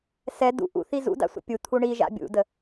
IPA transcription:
s ɛ d ṵ ʔ ṵ θ i z ṵ d a̰ sʷ ə̰ pʲ u t̪ʰ u ɳ i ʒ a̰ bʲ ṵ d ə

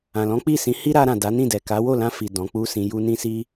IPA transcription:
ã˨ l ɔ̃˨˦ k͡p i˦˨ s ĩ˨˦ h i˦ ɾ a˧ ɾ ã˨ d a˨˦ n ĩ˦˨ d ɛ˨ k a˨˦ w o˦˨ l ã˧ f i˨ d ɔ̃˨˦ k͡p u˦ s ĩ˧ j u˧ n ĩ˧ s i˧

